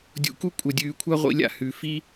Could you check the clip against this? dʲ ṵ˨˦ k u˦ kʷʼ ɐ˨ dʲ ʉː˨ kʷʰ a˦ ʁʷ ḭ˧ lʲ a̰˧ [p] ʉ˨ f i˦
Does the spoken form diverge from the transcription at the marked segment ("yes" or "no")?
yes